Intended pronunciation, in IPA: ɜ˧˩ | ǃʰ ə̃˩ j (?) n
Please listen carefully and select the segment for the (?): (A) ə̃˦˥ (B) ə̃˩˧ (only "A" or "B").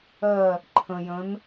B